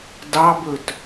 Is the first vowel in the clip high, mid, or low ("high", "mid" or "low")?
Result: low